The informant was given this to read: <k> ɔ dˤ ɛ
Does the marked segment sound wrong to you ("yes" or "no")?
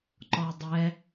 yes